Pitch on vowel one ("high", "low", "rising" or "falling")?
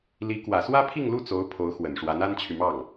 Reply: rising